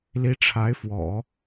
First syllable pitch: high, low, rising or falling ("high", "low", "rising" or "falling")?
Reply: rising